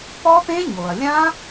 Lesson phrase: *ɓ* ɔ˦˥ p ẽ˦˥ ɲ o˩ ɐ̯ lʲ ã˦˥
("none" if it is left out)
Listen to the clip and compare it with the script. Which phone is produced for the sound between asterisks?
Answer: p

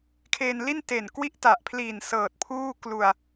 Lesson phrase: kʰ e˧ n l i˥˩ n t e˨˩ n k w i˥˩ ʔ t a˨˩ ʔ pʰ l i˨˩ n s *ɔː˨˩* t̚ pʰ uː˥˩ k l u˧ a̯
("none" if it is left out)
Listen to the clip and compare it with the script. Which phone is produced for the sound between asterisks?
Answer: ɤː˨˩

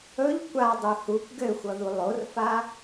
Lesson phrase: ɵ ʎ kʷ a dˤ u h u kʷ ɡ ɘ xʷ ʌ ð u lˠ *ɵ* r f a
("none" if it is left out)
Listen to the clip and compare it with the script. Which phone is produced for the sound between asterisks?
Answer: o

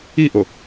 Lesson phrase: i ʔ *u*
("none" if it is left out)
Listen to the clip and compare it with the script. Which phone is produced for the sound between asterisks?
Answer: o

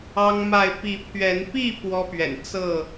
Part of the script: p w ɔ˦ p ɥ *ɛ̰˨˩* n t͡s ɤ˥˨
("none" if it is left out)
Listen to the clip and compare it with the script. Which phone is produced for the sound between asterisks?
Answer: ɛ̰˨˩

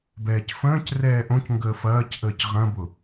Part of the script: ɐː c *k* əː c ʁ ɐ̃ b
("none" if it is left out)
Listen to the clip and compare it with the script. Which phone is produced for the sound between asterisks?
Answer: ʔ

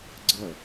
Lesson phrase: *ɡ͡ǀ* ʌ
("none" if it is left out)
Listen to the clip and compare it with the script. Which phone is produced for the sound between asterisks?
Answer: ɡ͡ǀ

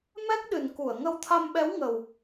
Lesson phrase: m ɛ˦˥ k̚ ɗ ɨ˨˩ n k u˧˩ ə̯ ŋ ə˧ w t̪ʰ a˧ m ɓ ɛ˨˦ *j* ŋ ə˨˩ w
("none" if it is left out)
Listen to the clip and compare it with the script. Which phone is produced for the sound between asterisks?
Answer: w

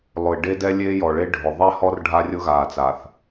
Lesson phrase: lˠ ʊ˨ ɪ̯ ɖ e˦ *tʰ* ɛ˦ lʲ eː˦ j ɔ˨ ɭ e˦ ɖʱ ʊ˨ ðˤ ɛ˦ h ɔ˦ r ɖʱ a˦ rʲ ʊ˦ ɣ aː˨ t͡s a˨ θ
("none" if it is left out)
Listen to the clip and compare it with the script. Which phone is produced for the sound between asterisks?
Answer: d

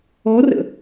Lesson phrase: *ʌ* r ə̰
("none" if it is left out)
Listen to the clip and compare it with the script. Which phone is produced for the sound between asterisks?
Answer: ɔ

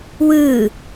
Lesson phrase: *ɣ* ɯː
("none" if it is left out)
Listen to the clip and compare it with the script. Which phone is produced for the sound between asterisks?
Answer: w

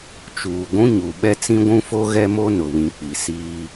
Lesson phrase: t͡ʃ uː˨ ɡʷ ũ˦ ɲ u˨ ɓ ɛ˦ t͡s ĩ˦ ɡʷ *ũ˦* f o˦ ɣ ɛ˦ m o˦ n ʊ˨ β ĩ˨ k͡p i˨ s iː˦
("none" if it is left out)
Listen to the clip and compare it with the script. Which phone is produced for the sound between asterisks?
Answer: ũ˦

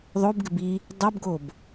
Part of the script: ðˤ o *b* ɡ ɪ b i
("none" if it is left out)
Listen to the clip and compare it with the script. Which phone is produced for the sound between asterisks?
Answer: b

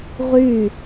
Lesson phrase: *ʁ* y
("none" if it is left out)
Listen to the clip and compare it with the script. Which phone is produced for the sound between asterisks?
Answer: ʁ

